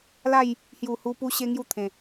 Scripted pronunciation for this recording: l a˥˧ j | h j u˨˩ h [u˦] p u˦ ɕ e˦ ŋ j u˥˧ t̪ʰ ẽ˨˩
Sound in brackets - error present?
yes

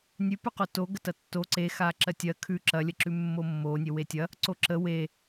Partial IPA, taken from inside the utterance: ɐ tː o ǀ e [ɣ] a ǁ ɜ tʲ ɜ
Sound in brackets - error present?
yes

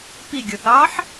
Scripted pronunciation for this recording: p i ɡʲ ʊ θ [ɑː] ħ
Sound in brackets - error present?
no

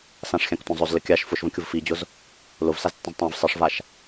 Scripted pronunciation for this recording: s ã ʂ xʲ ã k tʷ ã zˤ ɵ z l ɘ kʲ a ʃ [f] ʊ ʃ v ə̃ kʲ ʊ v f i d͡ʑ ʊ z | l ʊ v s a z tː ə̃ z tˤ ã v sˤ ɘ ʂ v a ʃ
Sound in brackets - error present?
no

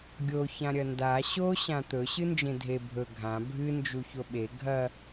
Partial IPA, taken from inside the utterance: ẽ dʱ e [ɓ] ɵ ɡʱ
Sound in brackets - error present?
yes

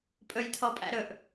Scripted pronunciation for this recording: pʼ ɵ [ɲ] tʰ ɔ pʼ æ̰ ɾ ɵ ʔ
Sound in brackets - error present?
yes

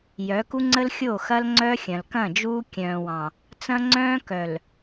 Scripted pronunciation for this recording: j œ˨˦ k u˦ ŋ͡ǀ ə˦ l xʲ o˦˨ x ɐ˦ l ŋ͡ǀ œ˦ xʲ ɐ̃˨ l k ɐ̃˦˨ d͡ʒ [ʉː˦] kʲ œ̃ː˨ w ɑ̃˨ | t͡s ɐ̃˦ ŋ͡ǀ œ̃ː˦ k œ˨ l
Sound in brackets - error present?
yes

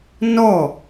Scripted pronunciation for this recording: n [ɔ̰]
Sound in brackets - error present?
yes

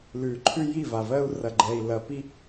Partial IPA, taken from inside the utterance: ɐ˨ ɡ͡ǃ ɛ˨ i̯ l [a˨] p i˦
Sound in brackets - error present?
yes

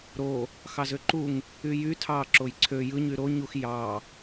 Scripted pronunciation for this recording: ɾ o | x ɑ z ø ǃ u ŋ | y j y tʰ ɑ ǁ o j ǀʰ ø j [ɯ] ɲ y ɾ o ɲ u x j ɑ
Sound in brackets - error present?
no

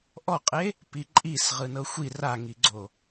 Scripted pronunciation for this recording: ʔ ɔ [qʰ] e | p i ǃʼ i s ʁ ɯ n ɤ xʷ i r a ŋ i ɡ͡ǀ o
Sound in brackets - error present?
yes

